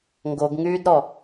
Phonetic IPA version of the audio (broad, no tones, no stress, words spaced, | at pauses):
ŋɡoɡŋyːdɾɔ